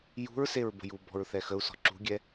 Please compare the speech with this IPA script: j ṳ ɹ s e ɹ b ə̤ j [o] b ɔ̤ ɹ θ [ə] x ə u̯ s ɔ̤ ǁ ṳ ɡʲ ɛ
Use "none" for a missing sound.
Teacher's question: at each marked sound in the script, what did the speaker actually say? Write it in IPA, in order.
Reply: u, ɛ

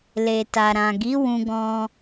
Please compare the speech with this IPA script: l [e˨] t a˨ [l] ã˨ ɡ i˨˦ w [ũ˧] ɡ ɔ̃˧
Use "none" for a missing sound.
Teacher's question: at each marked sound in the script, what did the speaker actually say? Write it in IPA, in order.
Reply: e˨, ɾ, ũ˧

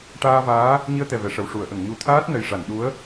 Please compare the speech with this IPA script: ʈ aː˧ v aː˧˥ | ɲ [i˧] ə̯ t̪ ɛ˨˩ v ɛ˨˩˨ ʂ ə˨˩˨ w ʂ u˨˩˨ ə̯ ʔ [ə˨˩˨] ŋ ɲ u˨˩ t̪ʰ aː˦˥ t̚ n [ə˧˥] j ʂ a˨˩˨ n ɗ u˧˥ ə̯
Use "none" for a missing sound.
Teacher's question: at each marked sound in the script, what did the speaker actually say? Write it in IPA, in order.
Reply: i˧, ə˨˩˨, ə˨˩

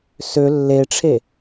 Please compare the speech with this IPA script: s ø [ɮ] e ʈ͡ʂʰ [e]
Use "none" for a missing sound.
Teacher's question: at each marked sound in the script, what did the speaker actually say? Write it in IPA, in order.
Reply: lː, e

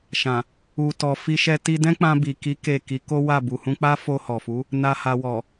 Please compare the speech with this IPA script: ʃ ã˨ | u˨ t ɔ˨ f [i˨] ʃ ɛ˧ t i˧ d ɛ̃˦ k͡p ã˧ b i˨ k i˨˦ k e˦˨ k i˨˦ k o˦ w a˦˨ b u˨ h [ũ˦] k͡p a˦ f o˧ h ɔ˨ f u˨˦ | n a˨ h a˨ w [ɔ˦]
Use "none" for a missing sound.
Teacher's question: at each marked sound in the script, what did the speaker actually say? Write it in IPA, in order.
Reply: i˧, ũ˧, ɔ˨

